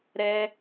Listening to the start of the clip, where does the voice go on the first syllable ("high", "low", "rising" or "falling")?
high